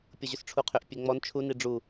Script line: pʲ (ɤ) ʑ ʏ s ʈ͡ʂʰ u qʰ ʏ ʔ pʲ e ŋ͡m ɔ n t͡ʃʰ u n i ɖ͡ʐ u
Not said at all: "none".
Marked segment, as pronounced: ɤ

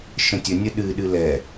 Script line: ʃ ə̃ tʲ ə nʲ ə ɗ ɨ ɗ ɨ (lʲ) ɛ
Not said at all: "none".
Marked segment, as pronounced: l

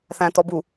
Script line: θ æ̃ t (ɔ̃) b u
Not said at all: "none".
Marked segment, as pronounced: ɔ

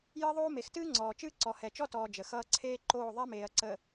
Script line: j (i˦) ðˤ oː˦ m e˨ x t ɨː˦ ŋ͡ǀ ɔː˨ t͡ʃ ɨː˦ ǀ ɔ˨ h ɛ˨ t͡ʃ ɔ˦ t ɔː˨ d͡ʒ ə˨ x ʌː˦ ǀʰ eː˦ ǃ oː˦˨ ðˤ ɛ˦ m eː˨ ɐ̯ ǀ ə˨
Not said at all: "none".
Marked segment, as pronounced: ɨ˦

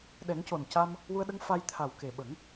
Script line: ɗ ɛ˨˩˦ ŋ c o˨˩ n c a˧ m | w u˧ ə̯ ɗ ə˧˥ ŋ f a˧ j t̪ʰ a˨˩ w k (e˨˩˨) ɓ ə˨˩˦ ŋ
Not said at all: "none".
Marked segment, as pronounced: e˨˩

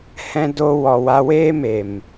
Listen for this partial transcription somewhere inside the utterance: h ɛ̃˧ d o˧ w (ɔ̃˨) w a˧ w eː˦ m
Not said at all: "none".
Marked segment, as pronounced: ɔ˨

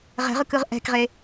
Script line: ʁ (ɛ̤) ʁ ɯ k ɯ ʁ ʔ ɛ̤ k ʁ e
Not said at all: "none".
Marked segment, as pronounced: ɛ̤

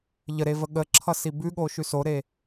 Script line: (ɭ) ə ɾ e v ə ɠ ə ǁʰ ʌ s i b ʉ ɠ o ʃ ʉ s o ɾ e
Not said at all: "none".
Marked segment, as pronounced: ʎ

